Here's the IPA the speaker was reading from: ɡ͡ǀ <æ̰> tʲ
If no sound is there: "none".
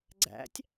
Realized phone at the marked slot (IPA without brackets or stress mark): æ̰